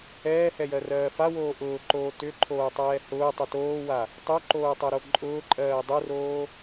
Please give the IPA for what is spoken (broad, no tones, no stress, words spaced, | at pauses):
ɛːhɛjɜrɜː fawoː ʔʊːǃoː tʏǃʰoːtˤɛː hʊːtˤʏ toːwa | tˤoǃoːtˤɜɾo ǃʼʊːǃʼɜː dˤʊroː